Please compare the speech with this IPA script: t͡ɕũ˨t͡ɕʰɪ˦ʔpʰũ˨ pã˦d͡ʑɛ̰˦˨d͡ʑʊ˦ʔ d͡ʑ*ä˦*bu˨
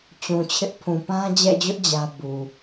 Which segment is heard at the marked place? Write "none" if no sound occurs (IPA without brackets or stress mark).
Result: ä˦